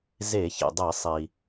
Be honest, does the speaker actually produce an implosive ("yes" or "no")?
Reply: no